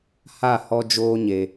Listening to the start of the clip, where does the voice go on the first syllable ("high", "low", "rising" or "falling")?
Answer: falling